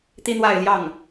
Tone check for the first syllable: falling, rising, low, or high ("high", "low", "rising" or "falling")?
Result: high